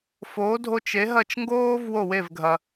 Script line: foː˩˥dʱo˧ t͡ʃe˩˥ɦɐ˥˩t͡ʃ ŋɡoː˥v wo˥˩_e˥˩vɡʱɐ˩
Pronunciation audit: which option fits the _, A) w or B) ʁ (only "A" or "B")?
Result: A